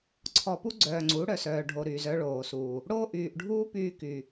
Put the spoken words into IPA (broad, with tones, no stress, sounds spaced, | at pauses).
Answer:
ǀʰ ɔ˨ p u˦ ɡ͡ǀ œː˨ ŋ͡ǀ u˨˦ ɽ œ˨ s œː˨ ɖʱ o˨ ɾ yː˨ z œ˦ ɭ oː˨ s uː˨ | ɽ oː˦ ʔ yː˨ ʔ ɖʱ uː˦ p yː˦ k y˨